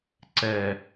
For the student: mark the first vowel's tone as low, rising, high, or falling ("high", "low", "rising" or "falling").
low